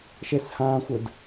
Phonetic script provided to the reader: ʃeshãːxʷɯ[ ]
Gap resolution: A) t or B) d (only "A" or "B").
B